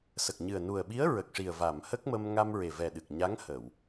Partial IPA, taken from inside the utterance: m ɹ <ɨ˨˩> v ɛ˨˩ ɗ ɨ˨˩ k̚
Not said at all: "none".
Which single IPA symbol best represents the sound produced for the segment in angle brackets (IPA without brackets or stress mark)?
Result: e˨˩